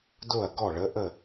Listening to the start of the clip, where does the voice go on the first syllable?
falling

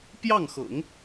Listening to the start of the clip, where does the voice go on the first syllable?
falling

